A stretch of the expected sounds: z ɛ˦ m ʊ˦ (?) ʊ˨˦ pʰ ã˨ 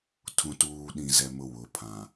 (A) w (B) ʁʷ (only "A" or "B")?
A